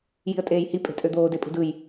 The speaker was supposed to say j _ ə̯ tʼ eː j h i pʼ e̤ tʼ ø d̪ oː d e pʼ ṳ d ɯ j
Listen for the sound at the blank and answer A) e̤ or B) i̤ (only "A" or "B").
B